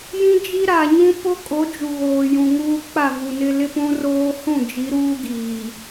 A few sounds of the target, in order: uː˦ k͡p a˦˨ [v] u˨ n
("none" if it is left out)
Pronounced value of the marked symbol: v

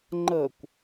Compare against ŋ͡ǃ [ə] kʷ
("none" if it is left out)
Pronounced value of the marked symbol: ə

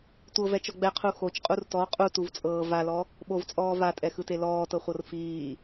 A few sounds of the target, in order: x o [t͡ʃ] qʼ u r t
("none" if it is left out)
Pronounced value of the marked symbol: t͡ʃ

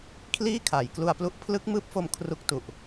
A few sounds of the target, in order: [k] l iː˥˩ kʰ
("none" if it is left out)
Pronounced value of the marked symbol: kʰ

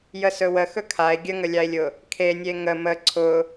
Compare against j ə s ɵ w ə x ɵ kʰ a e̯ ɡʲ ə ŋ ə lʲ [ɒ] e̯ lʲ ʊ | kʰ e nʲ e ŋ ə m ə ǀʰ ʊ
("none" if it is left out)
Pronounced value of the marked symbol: ɑ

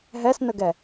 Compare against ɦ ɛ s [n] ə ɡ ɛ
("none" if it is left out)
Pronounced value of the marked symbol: n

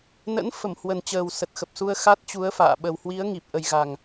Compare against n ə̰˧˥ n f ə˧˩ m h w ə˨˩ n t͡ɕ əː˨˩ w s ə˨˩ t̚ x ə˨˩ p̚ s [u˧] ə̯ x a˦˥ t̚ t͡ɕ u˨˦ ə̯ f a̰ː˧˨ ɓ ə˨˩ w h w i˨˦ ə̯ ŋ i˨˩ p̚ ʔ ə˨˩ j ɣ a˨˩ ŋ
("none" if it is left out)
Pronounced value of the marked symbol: u˧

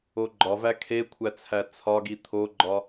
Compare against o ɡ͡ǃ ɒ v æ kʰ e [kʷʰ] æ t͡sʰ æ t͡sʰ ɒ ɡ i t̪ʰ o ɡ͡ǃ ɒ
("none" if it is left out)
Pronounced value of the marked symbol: kʷʰ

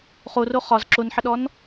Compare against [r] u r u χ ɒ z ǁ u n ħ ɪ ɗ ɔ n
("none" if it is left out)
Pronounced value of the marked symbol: χ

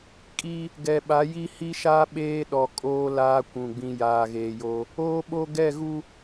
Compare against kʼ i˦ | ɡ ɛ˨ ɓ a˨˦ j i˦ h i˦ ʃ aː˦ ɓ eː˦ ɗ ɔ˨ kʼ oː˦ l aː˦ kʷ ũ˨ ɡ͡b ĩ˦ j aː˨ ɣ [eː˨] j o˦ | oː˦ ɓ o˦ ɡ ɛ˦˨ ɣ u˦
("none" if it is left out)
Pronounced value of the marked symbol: eː˨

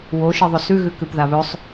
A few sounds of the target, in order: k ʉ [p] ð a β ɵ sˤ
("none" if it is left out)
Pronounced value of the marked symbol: p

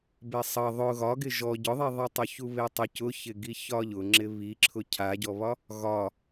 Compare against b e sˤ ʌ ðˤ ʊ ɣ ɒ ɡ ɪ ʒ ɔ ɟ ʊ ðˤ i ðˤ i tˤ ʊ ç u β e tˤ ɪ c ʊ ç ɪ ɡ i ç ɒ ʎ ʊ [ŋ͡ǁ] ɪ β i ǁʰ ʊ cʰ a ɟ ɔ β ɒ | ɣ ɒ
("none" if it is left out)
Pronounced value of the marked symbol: ŋ͡ǁ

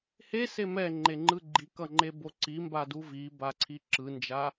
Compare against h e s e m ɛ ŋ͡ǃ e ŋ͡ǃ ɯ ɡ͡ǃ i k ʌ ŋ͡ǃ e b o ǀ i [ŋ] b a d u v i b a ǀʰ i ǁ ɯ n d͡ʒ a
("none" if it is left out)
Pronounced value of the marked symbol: m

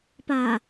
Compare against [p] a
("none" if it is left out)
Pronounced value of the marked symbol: p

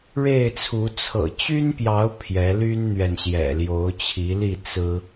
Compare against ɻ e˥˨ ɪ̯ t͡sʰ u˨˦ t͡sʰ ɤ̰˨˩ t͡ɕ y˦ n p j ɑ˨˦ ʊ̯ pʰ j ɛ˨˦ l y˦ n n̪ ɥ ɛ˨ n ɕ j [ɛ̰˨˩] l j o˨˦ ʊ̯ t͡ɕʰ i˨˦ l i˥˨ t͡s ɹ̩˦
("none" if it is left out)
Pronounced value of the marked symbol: ɛ̰˨˩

